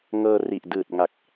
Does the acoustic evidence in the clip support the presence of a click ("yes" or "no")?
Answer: no